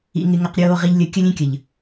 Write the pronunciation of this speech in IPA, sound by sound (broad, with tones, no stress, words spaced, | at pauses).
ḭ˨ŋɪ˨ ŋɐ˨qɾʲoː˨ ʁi˨ʎlʲə˨ kʲə˦lʲẽ˦kʲə˨ʎ